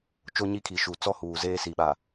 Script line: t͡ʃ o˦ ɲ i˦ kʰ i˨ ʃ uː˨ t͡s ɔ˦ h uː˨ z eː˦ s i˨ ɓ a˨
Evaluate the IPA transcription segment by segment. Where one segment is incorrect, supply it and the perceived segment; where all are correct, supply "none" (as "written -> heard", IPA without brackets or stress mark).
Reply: none